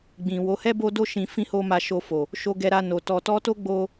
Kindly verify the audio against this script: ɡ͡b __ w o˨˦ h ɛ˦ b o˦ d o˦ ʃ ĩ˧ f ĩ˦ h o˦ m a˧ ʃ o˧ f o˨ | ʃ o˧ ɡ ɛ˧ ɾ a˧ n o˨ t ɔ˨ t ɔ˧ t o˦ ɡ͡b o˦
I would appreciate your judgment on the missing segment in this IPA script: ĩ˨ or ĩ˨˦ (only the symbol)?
ĩ˨